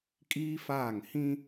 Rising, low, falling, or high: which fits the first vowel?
high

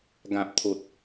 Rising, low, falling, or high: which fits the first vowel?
low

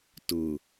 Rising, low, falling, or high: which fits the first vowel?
low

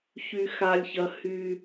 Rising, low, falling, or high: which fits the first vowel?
low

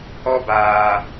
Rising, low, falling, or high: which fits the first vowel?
high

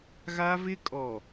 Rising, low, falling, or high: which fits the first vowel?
high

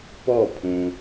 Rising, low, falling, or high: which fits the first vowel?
falling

